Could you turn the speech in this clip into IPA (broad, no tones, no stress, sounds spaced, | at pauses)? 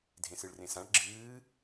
dʱ ẽ s ɨ ɭ r ẽ s ã ɭ ɡ͡ǁ ɨː